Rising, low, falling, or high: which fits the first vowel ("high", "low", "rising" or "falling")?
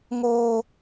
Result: high